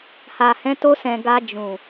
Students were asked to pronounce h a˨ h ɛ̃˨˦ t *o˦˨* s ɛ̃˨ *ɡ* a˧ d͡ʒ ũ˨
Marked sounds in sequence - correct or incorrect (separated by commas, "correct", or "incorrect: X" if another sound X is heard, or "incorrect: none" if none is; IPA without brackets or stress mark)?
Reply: incorrect: o˧, correct